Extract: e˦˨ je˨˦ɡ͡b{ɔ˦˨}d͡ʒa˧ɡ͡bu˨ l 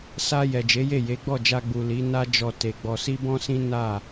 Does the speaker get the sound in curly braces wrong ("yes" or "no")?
no